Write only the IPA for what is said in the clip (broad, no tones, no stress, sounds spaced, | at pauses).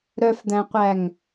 ɾ œ f d̪ æ̃ qʷ æ ŋ